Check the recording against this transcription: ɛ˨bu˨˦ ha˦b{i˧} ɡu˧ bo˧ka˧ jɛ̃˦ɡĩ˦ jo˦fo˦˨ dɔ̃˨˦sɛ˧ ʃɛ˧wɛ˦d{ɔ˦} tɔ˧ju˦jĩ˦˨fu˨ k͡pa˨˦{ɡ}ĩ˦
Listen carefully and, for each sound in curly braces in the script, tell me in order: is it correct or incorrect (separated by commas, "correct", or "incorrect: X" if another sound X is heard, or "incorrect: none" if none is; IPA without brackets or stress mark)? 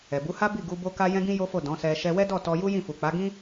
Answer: incorrect: i˦˨, incorrect: ɔ˦˨, correct